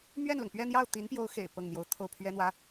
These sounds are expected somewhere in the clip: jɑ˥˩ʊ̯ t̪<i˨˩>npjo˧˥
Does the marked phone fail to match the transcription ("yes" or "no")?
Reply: yes